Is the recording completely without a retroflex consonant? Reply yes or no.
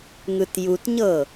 yes